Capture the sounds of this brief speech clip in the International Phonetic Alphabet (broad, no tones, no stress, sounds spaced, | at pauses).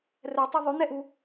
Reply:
r ɛ tˤ ɯ ðˤ ʉ n ɛ ʔ u